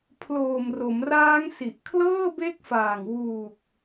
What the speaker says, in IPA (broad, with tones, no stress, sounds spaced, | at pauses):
pʰ l oː˨˩ m r o˩˦ m r aː˦˥ ŋ s i˨˩ ʔ kʰ l ɤː˥˩ b e˦˥ k̚ f aː˨˩ ŋ w uː˨˩ k̚